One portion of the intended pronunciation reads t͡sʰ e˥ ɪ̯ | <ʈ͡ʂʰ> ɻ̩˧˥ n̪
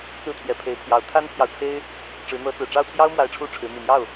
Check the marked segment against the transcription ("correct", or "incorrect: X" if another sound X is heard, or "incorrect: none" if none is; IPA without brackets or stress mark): incorrect: ʈ͡ʂ